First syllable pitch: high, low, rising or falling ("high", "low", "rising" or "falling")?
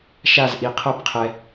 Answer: falling